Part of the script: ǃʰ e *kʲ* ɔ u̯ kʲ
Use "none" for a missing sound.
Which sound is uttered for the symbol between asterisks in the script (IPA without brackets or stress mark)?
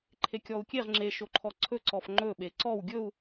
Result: kʲ